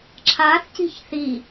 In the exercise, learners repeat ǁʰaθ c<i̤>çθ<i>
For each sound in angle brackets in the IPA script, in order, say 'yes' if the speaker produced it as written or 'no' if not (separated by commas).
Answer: yes, yes